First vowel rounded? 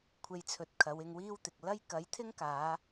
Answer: no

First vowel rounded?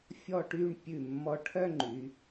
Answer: yes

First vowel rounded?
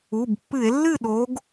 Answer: yes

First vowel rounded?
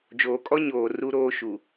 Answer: yes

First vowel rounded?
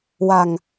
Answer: no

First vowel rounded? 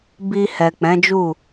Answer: no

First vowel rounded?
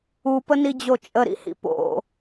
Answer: yes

